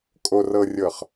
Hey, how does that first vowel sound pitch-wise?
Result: low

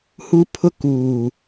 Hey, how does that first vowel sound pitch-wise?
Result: high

